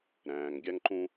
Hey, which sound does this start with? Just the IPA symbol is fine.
ɾ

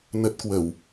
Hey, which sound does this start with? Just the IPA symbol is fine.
n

